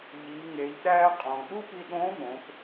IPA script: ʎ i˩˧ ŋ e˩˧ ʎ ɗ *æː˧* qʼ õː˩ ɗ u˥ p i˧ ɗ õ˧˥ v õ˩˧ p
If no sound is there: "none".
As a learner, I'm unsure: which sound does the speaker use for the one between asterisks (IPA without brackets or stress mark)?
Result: æː˧